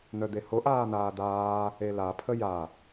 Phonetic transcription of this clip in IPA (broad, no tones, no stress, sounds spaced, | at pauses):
n̪ œ d̪ e h o ʔ aː n̪ aː d̪ aː | e l a pʰ ə j a